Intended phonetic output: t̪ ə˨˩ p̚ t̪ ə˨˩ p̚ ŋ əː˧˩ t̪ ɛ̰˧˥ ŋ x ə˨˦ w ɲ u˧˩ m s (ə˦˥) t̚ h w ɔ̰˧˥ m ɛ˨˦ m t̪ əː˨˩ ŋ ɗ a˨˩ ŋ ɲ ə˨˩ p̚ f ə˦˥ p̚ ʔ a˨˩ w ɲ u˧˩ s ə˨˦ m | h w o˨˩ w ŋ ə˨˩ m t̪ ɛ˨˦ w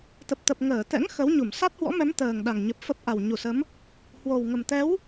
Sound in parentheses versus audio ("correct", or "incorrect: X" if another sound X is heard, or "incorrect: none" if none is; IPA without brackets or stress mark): incorrect: a˦˥